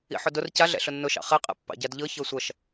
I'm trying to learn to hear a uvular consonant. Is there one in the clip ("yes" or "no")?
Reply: yes